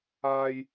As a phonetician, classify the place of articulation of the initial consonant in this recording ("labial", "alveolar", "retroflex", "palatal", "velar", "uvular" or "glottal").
palatal